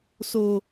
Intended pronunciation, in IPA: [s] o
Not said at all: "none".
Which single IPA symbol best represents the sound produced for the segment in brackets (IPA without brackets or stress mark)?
s